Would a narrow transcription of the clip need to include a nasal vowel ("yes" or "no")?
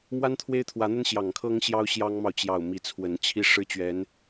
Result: no